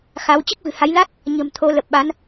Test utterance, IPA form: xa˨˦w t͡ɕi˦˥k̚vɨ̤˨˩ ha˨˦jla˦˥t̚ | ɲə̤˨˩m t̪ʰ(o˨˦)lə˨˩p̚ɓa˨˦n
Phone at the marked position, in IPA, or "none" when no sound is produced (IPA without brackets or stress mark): o˨˦